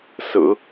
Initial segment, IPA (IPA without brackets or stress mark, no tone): s